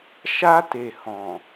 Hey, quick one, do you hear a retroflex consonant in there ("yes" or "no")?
no